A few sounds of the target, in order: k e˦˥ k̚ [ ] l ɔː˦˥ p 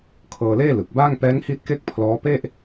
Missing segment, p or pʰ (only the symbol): pʰ